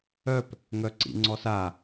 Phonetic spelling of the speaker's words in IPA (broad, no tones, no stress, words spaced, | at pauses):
œp | ŋœǀḭŋ͡ǀɔsa